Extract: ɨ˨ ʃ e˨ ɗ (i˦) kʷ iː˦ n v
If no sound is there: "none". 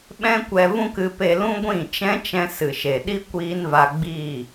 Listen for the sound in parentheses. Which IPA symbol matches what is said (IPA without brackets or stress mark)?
i˦